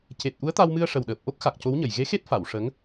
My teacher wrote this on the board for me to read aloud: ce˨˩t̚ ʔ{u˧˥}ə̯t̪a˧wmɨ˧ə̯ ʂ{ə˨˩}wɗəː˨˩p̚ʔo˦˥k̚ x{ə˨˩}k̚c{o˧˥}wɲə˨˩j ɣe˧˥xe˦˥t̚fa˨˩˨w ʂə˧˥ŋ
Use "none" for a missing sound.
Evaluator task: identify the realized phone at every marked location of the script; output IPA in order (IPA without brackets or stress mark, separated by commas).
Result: u˧˥, ə˨˩, a˨˩, o˧˥